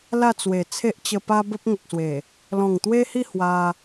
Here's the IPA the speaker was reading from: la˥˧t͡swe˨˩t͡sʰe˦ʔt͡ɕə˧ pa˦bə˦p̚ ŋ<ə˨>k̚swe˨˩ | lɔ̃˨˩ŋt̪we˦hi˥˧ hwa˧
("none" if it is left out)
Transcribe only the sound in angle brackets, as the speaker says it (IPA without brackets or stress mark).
ə˨